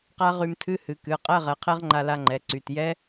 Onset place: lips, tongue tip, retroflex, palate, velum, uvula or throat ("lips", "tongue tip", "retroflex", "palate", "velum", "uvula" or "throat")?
uvula